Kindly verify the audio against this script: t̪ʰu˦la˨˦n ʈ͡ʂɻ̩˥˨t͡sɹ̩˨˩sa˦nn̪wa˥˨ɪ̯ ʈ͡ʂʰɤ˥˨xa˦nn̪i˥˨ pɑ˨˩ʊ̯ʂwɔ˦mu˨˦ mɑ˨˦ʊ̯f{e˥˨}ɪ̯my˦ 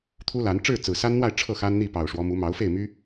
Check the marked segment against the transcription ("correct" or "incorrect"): correct